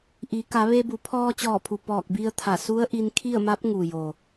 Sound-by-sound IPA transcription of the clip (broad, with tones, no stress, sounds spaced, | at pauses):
ʔ i˩˧ k a˩˧ ʋ e˧ b u˩˧ pʰ ɔː˧ t͡ɕ ɔː˧˩ pʰ u˩ p ɔː˧˩ k̚ b i˧ ə̯ t̪ʰ a˧˩ s u˧˥ ə̯ ʔ i˧ n kʰ i˥˨ ə̯ m a˧˥ p̚ ŋ u˩ j o˩